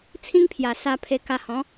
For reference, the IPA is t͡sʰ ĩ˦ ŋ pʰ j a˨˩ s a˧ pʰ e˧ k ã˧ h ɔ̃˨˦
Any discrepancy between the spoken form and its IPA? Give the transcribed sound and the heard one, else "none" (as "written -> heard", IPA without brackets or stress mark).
ã˧ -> a˧